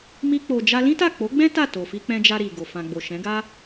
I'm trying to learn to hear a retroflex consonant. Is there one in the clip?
no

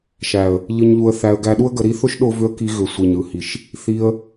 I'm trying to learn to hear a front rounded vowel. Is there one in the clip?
yes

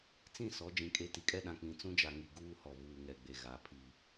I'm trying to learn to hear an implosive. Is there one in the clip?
yes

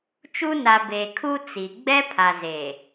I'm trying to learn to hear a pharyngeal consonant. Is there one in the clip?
no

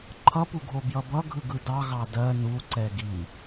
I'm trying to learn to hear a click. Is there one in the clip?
yes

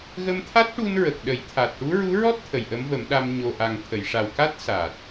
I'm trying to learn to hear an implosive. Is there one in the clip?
yes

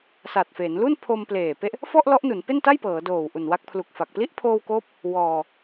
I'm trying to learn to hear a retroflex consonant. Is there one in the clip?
no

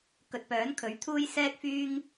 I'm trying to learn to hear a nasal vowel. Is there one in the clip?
no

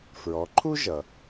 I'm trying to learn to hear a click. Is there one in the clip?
yes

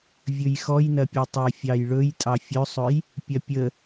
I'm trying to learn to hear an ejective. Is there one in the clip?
yes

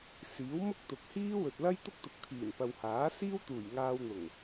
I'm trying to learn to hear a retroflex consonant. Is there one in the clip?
no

